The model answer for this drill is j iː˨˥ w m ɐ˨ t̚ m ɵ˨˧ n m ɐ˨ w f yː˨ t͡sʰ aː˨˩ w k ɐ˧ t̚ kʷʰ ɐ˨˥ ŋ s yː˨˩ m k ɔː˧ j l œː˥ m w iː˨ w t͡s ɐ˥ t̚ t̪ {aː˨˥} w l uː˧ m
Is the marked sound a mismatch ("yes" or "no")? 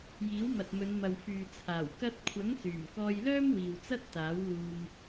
no